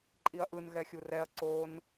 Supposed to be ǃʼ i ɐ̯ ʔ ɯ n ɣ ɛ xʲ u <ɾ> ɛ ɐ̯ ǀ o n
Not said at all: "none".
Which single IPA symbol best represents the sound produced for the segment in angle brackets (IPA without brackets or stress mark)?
r